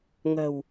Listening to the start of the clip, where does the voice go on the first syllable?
low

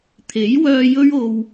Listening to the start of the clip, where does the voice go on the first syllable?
rising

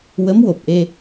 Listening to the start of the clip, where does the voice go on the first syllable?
rising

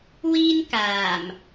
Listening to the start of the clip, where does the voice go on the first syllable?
high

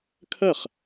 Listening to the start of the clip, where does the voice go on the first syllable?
falling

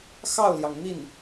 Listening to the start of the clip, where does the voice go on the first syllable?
falling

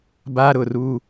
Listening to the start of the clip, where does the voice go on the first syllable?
high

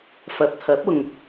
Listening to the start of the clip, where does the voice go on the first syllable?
low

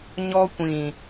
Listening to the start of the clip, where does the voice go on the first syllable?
high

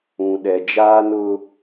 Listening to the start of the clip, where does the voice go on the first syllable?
low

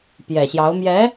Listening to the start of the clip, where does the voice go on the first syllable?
low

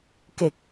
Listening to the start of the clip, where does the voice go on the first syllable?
low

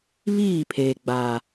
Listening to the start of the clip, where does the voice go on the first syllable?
falling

